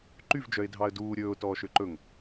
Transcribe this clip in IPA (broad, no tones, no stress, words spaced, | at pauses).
ǃyvd͡ʒœɪ̯dʱɑə̯ duː ɾʲɵːʊ̯tɔː ʃøǃɵŋ